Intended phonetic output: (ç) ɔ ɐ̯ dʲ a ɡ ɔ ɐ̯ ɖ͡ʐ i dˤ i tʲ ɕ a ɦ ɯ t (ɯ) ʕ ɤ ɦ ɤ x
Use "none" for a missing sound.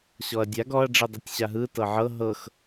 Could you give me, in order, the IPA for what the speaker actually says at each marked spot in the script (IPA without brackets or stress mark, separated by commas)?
ɕ, ɤ